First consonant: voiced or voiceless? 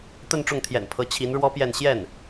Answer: voiceless